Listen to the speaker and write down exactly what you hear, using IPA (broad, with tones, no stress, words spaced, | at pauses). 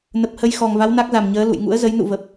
nə˨˩p̚hə˧jxɔ˨˩ŋva˨˦w na˦˥k̚za˨˩mɲəː˨˦ lṵ˧˨j ŋṵ˧˥ə̯zə˨˦j nṵ˧˨və˨˩p̚